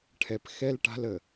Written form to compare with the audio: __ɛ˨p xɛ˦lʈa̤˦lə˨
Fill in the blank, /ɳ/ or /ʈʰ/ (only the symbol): ʈʰ